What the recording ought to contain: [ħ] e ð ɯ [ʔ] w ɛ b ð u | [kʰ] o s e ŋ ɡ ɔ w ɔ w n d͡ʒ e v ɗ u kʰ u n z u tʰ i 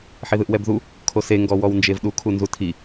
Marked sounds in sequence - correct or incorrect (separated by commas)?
correct, correct, correct